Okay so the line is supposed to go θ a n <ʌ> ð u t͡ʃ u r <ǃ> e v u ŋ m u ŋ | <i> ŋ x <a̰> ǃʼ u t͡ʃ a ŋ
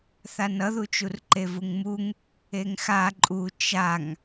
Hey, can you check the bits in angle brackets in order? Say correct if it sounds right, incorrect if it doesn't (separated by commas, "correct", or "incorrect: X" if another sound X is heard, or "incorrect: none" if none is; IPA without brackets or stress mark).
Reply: correct, correct, incorrect: e, incorrect: a